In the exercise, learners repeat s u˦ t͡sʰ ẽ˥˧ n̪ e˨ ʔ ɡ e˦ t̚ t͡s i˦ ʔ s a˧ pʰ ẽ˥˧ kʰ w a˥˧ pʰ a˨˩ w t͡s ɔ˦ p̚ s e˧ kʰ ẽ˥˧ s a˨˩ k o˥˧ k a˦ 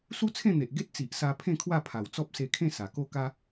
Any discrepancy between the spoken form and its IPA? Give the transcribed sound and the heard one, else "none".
i˦ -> i˨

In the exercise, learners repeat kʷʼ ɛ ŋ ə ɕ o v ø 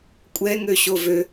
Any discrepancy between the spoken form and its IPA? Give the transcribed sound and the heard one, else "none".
ə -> ø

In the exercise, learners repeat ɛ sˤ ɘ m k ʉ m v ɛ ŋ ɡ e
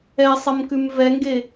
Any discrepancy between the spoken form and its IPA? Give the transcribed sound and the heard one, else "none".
none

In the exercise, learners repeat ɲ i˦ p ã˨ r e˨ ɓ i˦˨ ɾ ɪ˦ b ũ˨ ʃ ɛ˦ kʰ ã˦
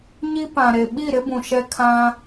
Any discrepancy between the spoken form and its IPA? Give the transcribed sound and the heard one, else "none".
r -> ɾ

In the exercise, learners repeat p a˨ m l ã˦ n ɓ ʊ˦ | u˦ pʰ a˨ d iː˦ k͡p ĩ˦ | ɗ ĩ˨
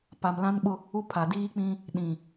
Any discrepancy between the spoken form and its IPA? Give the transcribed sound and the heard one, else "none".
none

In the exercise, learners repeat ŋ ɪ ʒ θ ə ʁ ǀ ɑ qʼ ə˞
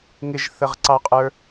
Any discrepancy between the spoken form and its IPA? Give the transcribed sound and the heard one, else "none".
none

